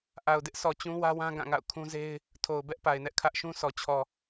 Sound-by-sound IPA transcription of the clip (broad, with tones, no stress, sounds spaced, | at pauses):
ʔ a˨ ʊ̯ d ɪ˦ ʔ s ɔ˨ t͡ɕ ũ˦ w ä˦ w ã˦ ɡ ã˦˨ ŋ a̰˦˨ ʊ̯ kʰ ũ˦ z e˦ ɪ̯ | tʰ o˨ ʊ̯ b ɛ˦ ʔ p a˨ ɪ̯ n ɛ˦ ʔ kʰ ä˦ ʔ ʃ ũ˦ sʰ ɔ˨ t͡ɕʰ ɔ˨